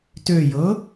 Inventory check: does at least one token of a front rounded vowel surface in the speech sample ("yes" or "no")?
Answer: yes